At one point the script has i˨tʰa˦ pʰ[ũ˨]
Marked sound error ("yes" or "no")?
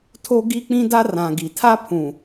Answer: no